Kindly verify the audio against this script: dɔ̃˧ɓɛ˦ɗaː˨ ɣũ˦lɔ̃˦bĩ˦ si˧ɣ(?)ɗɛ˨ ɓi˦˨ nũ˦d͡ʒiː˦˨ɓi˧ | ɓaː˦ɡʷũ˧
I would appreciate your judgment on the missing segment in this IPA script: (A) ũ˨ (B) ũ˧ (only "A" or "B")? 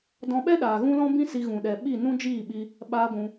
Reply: A